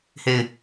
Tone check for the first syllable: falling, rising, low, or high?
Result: falling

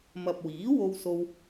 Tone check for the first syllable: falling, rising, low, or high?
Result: low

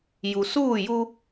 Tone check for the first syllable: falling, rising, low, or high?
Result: low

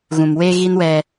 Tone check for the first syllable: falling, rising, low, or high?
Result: low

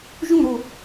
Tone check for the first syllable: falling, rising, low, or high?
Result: falling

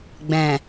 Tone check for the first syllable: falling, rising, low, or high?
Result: low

